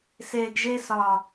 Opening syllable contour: low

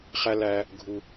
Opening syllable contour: high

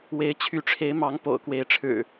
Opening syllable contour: rising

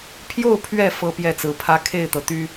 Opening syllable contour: falling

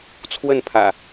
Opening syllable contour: falling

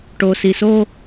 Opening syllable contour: low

